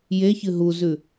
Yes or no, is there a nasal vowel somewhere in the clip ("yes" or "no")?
no